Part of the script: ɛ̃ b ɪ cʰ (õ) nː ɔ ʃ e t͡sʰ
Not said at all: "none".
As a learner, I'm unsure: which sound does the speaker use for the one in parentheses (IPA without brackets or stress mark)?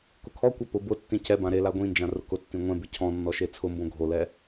ɔ̃